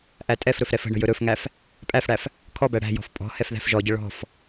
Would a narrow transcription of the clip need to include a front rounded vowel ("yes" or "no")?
no